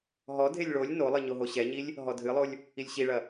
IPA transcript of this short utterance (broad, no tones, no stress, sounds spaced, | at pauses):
ɦ ɔ dʱ e lʲ ɭ o lʲ n o lˠ ɨ ɲ o ɦ o ɕ ɛ ɲ i lʲ | ɦ ɔ dʱ ɨ lˠ o lʲ | i lʲ ɕ i ɭ ɐ